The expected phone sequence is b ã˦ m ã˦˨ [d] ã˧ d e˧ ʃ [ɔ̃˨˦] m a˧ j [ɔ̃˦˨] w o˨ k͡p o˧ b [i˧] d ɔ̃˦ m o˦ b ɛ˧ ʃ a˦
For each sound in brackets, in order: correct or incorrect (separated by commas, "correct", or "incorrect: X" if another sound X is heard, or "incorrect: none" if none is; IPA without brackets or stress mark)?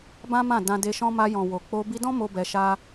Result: correct, incorrect: ɔ̃˦, incorrect: ɔ̃˨, correct